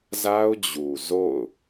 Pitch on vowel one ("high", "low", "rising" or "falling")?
high